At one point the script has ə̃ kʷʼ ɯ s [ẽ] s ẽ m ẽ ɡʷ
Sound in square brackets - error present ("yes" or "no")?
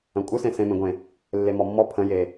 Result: no